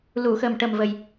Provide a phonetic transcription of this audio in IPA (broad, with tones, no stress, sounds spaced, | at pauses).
l u˨˩˨ x ə˨˩ m ʈ ə˨˩ m v ə˨˩ j